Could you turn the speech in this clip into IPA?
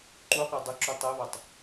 ǃuqʷɛ dˤəǁu tˤɛβɑtˤ

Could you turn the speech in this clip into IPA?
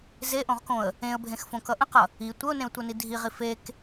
zeʔõʁkõə̯ | ẽə̯bʱẽxfõkʌ ʔə̃qʌ | i tʷəʊ̯nẽʊ̯tʷʌni dʱiʁi fek

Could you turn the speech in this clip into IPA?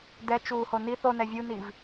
dɛ t͡ʃuːhoniθ onɛ vʲuniv

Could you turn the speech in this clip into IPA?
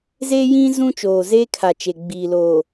ze˦jĩ˦ zũ˦t͡ʃoː˨zeː˦kʰa˨ t͡ʃe˨ ɡ͡biː˨loː˨

